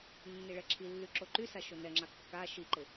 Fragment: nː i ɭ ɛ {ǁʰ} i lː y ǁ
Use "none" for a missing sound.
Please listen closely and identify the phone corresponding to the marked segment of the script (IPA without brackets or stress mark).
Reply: ǁʰ